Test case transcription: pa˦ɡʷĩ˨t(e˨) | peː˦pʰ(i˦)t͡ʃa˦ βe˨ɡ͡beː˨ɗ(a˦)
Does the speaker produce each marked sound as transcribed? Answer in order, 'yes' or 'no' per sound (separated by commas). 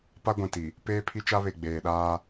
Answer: no, yes, no